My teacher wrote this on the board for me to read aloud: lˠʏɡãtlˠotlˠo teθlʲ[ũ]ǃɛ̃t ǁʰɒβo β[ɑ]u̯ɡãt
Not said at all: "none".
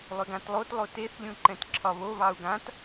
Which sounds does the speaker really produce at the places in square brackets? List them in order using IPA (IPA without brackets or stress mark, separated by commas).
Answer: ũ, ɑ